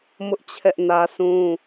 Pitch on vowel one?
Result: high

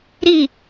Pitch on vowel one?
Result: falling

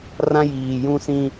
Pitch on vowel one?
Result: high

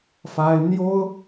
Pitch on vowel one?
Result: high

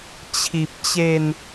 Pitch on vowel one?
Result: low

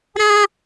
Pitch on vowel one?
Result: high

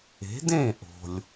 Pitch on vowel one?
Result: rising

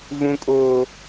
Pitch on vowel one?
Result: low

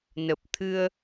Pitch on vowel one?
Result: low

